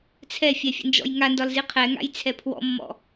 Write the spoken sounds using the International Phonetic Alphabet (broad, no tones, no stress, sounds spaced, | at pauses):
t͡sʰ ɛ fʲ ɛ fʲ ə̰ n d͡ʒ ɔ̰ j ŋ a n d ɒ l z i qʰ ɛ ŋ a̰ j t͡sʰ ɛ pʰ w ɔ̰ mː ɔ̰